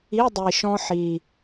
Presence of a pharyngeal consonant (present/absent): present